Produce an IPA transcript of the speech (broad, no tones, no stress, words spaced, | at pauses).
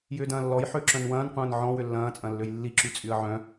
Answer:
jʏːdɐ̃ːlːɔj ħøǁœ̃nwɐ̃ːnqʷɐ̃ːn ʕɔ̃wʏ lːɐ̃ːt͡sʼɐ̃lːøj lːiǁyt͡sʼyə̯ ʕœ̃